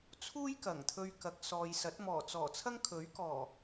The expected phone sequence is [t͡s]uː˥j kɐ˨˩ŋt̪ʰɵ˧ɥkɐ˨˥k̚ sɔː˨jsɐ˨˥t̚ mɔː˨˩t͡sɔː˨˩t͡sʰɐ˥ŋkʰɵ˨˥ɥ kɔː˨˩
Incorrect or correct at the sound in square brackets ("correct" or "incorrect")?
incorrect